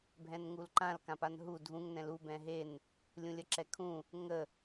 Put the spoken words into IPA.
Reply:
bʱ ɛ̃ n ŋ u l ǃ ã l k ã p a n ɦ u dʱ ũ ŋ n ɛ̃ l u b ɛ̃ ɦ e n | lʲ ũ lʲ ə ǁ ɛ kʰ ũ | ŋ ə

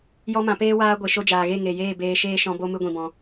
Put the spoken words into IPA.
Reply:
j ɔ˦ m ã˧ p eː˦ w aː˦ ɡʷ e˨ ʃ o˧ d͡ʒ aː˨ ɣ e˦˨ ŋ e˨ j eː˦˨ b eː˧ ʃ eː˦ ʃ ɔ̃˧ b o˦ m ɨ˦ ɡʷ ĩ˧ b ɔ̃˧

